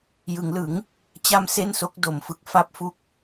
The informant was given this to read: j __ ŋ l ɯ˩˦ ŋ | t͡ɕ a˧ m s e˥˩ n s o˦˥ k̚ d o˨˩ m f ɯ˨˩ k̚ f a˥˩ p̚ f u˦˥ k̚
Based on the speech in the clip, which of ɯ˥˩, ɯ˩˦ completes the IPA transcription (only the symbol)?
ɯ˩˦